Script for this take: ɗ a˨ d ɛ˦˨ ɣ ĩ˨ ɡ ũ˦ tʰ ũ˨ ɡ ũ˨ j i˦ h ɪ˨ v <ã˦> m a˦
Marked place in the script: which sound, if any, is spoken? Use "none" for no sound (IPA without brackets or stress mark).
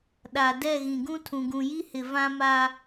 ã˦